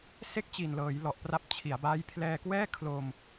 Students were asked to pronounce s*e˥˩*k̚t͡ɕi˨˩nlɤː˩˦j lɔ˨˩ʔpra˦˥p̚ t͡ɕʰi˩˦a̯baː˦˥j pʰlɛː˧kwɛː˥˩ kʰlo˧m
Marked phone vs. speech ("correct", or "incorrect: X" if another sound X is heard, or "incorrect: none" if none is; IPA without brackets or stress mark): correct